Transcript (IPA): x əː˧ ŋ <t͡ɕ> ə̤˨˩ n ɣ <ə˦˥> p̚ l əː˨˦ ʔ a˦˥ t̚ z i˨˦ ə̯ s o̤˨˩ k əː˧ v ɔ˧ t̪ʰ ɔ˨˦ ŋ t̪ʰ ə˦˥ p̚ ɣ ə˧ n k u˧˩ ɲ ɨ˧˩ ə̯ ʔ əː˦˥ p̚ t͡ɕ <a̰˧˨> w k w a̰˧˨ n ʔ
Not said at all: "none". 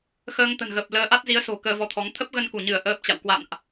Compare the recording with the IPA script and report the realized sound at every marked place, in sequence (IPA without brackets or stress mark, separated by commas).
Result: t̪, ə˨˩, a̰˧˨